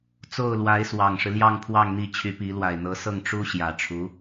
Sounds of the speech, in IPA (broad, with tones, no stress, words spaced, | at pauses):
t͡so˥˩ʊ̯lwa˧˥ɪ̯ swɑ˨˩ŋʂɻ̩˦ljɑ˥˧ŋ pʰwɑ˥˧ŋn̪i˥˩t͡ɕʰy˧˥pi˧˥ lwa˨˩ɪ̯n̪ɤ˧˥sɤ˥˩ŋ ʈ͡ʂu˥ɕjä˨˩ ʈ͡ʂʰu˧˥